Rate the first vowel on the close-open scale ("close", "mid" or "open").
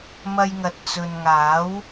open